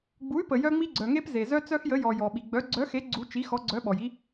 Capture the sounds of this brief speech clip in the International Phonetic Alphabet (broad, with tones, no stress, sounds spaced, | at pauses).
ɡ͡b u˩˥ y̯ p ə˩ j œ˦ ŋ͡m i˦ ɡ͡ǀ œ˩ ŋ e˦ p z e˩ z œ˦ t͡s œ˦ x j ə˩˥ j ɔ˩ j ɔ˩ ɓ i˩ ɡ͡b œ˩˥ ɡ͡ǀ œ˩˥ x e˩˥ ɡ͡ǀ u˩˥ t͡ʃ i˩˥ x ɔ˩˥ ɡ͡ǀ œ˩˥ ɓ ɔ˩ j i˦